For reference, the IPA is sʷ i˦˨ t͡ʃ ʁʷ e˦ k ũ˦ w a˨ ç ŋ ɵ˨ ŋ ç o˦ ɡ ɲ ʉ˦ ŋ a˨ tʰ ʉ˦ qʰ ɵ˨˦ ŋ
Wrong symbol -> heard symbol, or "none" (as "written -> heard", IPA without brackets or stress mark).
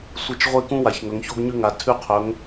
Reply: none